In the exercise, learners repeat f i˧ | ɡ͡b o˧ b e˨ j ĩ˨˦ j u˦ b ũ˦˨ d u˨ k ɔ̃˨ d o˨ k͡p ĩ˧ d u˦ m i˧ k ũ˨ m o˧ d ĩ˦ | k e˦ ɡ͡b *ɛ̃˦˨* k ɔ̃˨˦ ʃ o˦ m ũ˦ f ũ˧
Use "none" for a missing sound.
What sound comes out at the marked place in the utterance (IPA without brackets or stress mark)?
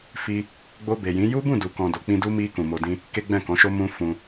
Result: ɛ̃˦˨